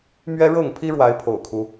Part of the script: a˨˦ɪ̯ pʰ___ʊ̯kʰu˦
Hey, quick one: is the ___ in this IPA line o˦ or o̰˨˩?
o̰˨˩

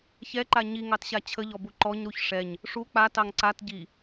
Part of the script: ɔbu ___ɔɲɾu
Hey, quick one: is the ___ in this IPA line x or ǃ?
ǃ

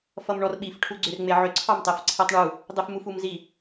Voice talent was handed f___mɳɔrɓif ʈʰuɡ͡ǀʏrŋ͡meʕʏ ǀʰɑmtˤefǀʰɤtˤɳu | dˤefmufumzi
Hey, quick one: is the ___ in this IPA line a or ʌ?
ʌ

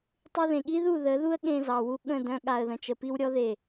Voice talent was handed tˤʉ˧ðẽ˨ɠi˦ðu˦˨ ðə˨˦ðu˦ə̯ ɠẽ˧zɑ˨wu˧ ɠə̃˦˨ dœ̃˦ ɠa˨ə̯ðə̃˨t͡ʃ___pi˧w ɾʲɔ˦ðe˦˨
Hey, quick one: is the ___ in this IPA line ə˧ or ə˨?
ə˨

